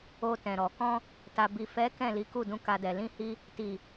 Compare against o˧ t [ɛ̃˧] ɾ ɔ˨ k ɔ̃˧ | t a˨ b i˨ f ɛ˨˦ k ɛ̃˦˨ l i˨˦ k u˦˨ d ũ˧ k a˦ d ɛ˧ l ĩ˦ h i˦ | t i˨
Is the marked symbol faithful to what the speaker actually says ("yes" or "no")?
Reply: no